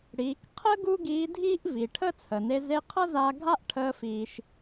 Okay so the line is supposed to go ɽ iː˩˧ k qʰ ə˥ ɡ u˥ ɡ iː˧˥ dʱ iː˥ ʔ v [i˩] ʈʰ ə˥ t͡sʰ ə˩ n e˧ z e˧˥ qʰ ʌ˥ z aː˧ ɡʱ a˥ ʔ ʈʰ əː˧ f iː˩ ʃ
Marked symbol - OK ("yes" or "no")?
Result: yes